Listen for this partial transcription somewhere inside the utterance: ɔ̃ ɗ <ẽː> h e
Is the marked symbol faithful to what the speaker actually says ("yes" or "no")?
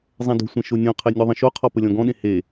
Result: no